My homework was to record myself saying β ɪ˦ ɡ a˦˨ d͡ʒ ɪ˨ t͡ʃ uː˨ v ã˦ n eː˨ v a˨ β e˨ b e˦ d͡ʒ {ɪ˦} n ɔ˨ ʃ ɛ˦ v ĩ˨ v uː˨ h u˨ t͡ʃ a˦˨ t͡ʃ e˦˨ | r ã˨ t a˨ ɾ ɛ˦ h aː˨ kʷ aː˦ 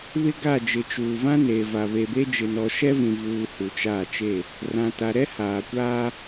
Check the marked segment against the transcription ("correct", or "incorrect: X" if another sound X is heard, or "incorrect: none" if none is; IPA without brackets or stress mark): incorrect: ɪ˨